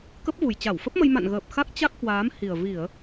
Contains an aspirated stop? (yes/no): no